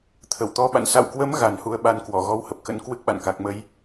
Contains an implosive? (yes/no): yes